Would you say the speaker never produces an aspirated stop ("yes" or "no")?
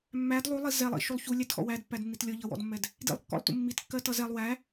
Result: yes